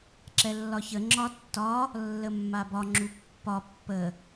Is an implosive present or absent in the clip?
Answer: absent